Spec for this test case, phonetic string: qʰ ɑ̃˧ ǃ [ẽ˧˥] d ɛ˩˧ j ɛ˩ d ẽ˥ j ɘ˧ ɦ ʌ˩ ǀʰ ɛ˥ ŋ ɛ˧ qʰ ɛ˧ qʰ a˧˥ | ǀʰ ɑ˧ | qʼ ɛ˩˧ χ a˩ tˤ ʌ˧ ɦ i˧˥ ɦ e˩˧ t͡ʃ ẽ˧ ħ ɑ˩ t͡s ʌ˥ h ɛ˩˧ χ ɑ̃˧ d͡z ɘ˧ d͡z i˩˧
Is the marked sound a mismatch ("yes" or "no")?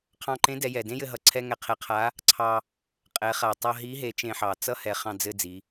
no